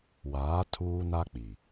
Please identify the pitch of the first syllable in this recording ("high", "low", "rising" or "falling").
rising